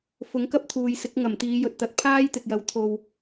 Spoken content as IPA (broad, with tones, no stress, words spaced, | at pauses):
fʊ˨˥ŋkɐ˥p̚t̪ʰuː˨jsɪ˨˥k̚ ŋɐ˨˩mt̪iː˨˧jɵ˨t̚t̪ɐ˧t̚ pʰaː˥jt̪ɪ˨k̚jɐ˨˧w t̪ʰo˨w